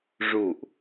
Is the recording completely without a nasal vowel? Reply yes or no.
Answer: yes